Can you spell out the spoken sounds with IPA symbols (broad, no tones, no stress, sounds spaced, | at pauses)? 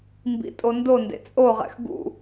m b ḭ tʼ o n d o n d ḛ t͡sʼ o ʁ ɛ̰ x ɡ ṵ